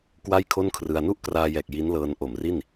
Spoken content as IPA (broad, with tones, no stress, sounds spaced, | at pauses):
k w a˥˩ j kʰ o˥˩ n kʰ r ɯ˧ a̯ n u˥˩ ʔ k r aː˧ j ɛː˨˩ k̚ j i˦˥ n l ɤː˧ n ʔ o˨˩ m r i˥˩ n